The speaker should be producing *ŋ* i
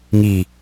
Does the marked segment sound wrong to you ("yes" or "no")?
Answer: no